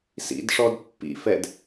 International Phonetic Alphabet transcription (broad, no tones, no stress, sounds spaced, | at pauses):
s ḭ d ʂ ɔ d pː ḭ f ɛ d